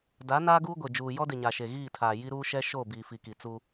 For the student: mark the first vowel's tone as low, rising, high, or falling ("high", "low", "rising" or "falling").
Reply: rising